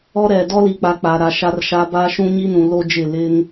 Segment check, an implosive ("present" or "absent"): absent